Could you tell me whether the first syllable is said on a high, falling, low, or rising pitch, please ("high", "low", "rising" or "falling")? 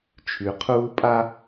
low